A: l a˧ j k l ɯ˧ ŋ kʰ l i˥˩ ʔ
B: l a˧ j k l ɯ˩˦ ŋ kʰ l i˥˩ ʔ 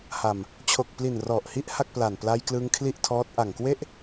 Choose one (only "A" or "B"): A